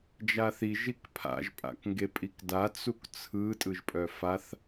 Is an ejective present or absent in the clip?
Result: present